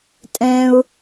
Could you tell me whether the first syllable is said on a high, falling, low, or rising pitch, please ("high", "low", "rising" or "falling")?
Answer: high